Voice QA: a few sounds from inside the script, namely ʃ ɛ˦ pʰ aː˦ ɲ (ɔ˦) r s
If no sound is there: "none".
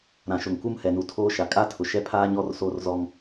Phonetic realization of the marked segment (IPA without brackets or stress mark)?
ɔ˦